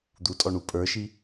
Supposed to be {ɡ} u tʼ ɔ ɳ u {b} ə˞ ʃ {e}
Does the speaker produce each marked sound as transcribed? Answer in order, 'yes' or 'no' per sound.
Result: no, no, no

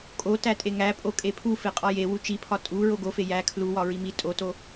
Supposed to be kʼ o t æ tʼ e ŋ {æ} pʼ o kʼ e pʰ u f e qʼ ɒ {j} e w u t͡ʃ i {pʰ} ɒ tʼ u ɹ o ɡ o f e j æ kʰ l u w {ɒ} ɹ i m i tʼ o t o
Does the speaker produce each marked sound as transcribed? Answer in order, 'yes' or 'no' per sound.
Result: yes, yes, yes, yes

